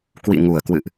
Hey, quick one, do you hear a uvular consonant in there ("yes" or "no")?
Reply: no